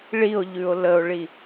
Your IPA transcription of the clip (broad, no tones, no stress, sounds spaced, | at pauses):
ɭ i o̯ ʎ ʉ o̯ l ə o̯ ɭ i